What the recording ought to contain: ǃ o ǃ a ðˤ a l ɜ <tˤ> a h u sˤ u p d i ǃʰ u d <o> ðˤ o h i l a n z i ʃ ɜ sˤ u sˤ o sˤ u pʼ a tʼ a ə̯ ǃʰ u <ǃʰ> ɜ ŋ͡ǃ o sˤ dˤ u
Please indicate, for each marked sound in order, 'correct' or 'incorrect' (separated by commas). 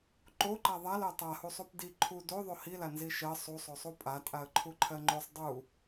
correct, correct, correct